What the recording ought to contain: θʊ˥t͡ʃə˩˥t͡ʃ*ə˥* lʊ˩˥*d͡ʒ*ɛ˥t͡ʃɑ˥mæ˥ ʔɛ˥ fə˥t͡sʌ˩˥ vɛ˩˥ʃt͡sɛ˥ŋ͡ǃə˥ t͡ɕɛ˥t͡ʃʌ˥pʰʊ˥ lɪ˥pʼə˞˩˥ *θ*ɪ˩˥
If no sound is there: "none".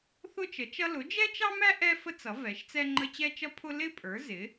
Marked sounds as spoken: ʌ˥, d͡ʒ, z

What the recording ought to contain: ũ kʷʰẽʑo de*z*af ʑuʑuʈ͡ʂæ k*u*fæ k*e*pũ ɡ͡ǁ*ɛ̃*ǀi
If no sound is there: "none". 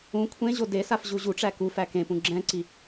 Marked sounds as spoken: s, u, ẽ, ɛ̃

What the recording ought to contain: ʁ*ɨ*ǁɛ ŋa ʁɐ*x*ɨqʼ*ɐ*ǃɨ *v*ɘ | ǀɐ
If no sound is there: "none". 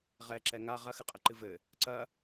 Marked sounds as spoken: ɛ, x, ɐ, v

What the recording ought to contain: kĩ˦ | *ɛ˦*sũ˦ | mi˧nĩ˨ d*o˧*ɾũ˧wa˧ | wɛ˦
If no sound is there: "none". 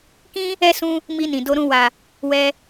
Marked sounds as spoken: ɛ˦, o˧

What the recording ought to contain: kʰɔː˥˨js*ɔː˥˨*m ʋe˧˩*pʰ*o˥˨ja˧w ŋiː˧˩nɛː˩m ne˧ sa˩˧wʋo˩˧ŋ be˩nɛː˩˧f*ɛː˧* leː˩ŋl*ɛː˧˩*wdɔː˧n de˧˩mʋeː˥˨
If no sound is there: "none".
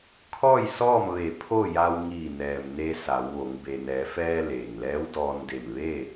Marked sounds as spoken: ɔː˥˨, pʰ, ɛː˧, ɛː˧˥

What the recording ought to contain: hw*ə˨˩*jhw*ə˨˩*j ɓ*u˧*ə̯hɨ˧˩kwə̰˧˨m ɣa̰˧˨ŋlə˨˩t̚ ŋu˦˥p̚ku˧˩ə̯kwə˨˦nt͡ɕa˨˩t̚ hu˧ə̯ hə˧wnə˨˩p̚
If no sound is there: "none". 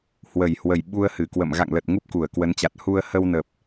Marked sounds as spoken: ə˨˩, ə˨˩, u˧

